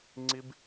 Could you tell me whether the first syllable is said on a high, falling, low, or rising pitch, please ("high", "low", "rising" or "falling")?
high